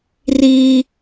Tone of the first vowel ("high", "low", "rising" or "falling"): high